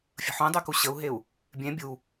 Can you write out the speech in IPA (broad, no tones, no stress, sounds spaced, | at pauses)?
fʲ ə̤ ħ ũ dˤ y k u ɕ ə u̯ ɦ e u̯ | bʲ ẽ bʲ u